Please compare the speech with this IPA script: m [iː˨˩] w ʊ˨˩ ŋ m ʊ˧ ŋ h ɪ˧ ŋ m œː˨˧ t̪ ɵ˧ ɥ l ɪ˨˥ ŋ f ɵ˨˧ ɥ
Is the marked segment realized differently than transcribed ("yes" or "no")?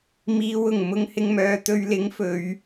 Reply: yes